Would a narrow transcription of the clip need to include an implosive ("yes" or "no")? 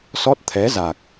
no